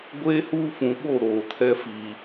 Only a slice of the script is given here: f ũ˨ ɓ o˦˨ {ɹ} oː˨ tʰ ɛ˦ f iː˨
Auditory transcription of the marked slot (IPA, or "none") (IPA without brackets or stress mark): ɾ